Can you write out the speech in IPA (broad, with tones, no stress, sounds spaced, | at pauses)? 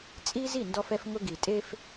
t͡sʼ i˦ z i˦˨ n d ɔ˦ f ɛ˦ f ŋ ʊ˦ ɡ i˨ tʼ e˦ f